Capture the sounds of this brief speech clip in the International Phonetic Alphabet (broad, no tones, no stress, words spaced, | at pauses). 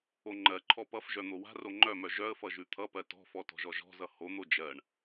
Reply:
oŋ͡ǃɜǃʰɔ pʌfʒœ n̪owa̤ro ŋ͡ǃœmœ ʒœə̯fʌ ʒʉt̪ʰʌpɜ tɔ̤fɔ tɔ̤ʒɔʒɔ̤zʌ hon̪o d͡ʒɜɳ